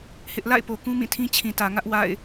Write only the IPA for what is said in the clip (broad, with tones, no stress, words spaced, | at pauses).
hɪ˦ʔ la̰˦˨ɪ̯po˨ kũ˦mĩ˦˨tʰĩ˦ t͡ɕʰĩ˨tä˨ ŋä˦ʔ wa̰˦˨ɪ̯